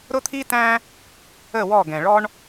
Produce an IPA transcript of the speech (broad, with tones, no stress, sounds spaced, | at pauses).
ɾ ʊ˦ t̪ʰ i˦ t æ̃˦ | ə˦˨ w ɔ˦˨ ɡ ɛ̃˨ ɭ ɔ˦ ɳ